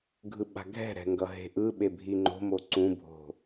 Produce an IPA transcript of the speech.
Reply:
ɡʱ ɯ ɓ a̤ ɡʱ ɛ̤ ɾ ɛ̤ ŋ ɡ ʌ ɦ e̤ ʔ ɯ ɓ e bʱ i ŋ͡ǃ o̤ m o ǀ ũ bʱ o̤

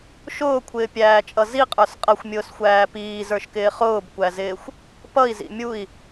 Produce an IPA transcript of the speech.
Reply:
ʃ ʊː kʷʰ ɪː pʲ æː t͡ʃʼ ʌ z i qʼ ə˞ s qʼ ʌ xʷ mʲ ʊː s xʷ æː p iː z ə˞ ʃ k ɪː χ ʊː b kʷ æ z ɪː xʷ | p ʌ i̯ z ḭ mʲ u i̯

